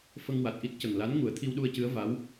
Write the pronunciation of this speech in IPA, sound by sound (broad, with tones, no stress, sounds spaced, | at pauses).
f ə˧ ŋ w a˨˩ t̚ ʔ i˦˥ t̚ c ə˨˩ ŋ l a˧˥ n ŋ u˨˩˦ ə̯ t̪ʰ i˧ w ɗ u˧ ə̯ c ɨ˧˥ ə̯ v a˧˥ w